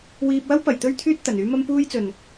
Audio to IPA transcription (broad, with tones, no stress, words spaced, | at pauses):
wiː˧p̚wɐ˥w pɐ˨jt̪ɵ˥ɥt̪ʰyː˥t̚ t̪ɐ˨nyː˥ mɐ˥mpuː˥jt͡sɵ˨n